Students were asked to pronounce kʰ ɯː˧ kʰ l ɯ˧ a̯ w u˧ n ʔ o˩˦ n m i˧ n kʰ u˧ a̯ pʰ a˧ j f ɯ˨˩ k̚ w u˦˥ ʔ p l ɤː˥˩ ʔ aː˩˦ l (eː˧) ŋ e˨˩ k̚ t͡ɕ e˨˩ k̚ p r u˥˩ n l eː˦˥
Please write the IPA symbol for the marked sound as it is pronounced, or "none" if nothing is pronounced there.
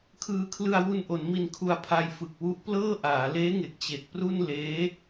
eː˦˥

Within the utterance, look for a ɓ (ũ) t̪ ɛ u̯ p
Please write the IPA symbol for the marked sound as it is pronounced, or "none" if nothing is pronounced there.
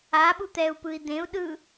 u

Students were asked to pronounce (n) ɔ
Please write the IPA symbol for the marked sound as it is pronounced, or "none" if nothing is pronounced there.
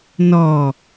n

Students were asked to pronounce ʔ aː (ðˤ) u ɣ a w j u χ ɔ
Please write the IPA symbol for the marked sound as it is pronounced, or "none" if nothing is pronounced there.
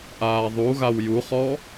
ðˤ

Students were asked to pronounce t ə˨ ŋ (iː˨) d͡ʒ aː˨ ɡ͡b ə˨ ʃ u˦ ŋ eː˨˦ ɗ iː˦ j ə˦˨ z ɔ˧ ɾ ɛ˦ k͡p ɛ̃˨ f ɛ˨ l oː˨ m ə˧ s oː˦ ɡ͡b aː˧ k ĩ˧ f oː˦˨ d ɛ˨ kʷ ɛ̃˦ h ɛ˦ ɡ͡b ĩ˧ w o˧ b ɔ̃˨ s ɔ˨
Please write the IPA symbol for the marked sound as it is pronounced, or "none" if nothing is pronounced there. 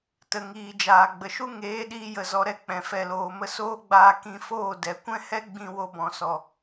iː˨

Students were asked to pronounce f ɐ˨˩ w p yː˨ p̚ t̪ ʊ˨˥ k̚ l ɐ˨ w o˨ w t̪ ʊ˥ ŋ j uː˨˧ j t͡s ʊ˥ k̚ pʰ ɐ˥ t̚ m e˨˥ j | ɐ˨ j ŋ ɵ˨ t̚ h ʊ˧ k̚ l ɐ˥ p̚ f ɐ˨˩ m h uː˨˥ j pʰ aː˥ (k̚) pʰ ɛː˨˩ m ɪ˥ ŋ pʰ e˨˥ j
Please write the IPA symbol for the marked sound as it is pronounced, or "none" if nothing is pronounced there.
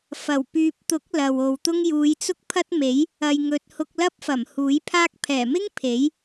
k̚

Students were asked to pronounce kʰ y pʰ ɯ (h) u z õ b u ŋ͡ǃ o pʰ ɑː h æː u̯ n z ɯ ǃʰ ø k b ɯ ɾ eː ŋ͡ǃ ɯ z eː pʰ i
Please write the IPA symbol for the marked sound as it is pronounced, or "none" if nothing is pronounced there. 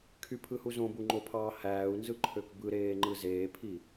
h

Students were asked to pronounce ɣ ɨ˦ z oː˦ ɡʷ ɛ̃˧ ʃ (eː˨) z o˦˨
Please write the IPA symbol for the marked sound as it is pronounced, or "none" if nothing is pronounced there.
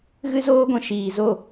iː˨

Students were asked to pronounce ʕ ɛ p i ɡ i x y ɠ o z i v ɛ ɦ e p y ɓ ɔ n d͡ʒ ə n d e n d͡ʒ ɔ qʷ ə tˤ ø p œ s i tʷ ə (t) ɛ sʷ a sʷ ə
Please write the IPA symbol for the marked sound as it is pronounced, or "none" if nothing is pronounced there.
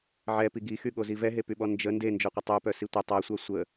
tˤ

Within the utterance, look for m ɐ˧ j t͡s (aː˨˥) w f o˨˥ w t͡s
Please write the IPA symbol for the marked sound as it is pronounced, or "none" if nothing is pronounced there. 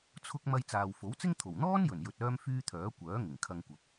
aː˨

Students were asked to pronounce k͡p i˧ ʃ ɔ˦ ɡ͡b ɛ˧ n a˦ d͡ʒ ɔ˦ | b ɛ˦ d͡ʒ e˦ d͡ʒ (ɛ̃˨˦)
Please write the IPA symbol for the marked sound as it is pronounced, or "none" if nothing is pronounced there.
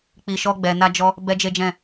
ɛ̃˦˨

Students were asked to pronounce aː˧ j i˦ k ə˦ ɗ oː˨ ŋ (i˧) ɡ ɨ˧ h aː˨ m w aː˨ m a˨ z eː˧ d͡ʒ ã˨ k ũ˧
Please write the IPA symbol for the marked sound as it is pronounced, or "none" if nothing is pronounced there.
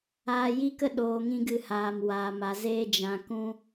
ĩ˧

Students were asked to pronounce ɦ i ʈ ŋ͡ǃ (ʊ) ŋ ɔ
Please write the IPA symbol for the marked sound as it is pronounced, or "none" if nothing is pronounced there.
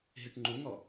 u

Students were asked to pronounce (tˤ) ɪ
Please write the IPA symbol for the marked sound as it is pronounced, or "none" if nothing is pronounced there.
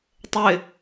tˤ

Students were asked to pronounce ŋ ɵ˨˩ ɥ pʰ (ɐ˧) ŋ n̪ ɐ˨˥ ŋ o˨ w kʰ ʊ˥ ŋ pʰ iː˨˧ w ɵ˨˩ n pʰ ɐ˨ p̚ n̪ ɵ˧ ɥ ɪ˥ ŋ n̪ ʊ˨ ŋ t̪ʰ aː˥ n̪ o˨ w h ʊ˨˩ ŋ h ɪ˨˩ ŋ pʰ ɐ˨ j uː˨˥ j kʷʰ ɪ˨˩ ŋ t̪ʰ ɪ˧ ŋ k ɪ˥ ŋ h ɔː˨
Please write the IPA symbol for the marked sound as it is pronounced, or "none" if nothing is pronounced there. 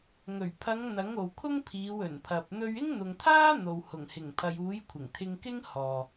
ɐ˨˧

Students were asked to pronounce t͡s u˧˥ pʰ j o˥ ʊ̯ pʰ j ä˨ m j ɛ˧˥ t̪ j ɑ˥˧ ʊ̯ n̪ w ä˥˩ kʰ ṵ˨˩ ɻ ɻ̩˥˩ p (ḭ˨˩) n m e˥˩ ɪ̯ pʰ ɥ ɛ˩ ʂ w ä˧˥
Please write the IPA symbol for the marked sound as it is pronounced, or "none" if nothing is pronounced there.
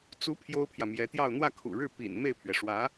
ḭ˨˩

